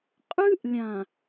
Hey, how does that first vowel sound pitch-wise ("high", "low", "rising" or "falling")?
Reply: high